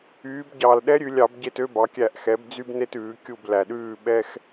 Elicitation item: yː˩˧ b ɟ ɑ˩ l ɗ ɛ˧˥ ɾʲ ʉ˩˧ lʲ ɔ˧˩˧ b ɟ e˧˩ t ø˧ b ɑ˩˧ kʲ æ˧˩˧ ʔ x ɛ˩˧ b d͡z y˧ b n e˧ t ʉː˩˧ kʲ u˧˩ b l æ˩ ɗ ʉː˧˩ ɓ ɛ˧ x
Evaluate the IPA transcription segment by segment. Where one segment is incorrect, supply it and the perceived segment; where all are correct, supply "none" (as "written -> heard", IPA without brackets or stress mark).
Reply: ɔ˧˩˧ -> ɑ˧˩˧